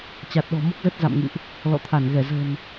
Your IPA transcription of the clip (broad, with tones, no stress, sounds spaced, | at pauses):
t͡ɕ a˨˩ t̚ ɗ ɔ̤˨˩ m o˦˥ k̚ z ə˦˥ t̚ z a̰˧˨ m ŋ ɨ̰˧˨ ʔ | l ɔ̰˧˨ t̪ʰ a˧˩ n ɣ ɛ˧˩ z ə̤˨˩ n